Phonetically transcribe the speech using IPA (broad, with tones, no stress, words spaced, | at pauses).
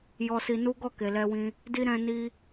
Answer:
jɔ˧si˧nu˦ ɡɔ˦˨ke˨lɛ˧wĩ˧ | di˧ ɾɛ̃˧ ni˧